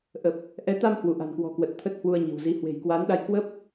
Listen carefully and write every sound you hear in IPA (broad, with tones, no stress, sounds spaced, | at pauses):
ʔ ə˨˩ p̚ | ʔ ɛ˨˦ t̪ a˧ m h w u˧˩ ʔ a̤˨˩ n k w ɔ̤˨˩ k w ə˨˩ t̚ t̪ʰ ə˦˥ t̚ h w u˧ ə̯ ɲ i̤˨˩ w z i˨˦ h w e̤˨˩ j k w a˨˦ n ɗ a˧ j k w ə˦˥ p̚